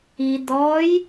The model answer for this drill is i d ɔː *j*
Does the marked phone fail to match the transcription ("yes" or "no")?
no